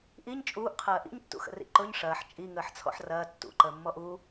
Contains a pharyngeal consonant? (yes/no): yes